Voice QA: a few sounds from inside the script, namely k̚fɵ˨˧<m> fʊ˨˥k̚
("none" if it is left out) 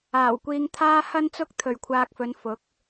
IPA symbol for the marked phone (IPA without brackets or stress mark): n